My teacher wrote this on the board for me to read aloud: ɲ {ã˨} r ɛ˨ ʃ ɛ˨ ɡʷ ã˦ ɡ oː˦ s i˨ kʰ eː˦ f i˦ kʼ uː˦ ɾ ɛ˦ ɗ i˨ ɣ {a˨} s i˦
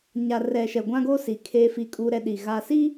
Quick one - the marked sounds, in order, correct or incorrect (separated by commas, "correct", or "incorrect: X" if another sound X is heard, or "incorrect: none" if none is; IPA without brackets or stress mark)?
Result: incorrect: a˨, correct